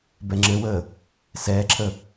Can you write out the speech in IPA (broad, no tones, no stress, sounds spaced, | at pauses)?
b ɛ ŋ͡ǁ ɘ w əː | s ɛː ǁʰ ə